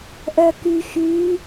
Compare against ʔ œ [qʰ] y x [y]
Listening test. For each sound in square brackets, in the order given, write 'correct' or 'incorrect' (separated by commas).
incorrect, correct